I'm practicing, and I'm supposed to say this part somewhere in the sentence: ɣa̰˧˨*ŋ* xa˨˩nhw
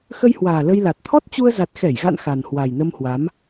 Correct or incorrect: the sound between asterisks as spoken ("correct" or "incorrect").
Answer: incorrect